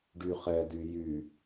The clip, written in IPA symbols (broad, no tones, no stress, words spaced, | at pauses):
ɖyχɛdy jy